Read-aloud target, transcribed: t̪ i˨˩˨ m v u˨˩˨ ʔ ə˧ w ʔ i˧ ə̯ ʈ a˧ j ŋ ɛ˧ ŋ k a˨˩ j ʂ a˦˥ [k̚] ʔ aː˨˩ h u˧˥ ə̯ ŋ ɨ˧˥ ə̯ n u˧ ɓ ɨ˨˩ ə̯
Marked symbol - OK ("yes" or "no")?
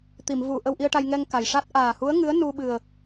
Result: no